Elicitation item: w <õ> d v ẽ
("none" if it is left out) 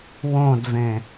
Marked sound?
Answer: õ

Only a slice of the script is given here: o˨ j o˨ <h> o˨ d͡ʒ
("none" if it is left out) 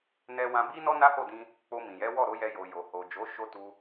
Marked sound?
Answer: h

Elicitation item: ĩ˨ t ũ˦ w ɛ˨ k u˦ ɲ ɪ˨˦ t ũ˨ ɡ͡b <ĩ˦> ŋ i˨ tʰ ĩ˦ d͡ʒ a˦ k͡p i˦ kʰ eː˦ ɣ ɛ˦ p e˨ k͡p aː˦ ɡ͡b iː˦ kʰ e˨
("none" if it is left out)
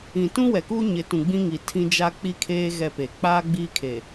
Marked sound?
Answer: ĩ˦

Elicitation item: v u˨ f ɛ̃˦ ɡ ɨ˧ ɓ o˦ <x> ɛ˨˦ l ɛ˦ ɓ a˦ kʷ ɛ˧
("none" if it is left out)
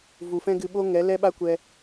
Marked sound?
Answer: ŋ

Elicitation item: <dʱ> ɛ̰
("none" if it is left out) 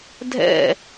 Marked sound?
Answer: dʱ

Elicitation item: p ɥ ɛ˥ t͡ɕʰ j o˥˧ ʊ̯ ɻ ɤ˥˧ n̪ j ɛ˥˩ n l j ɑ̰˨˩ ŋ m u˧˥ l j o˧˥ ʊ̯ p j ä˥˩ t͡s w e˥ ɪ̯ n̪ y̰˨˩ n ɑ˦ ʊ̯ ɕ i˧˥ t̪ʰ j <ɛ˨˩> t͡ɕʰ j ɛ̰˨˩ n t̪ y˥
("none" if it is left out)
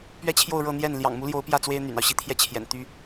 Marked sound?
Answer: ɛ˥˩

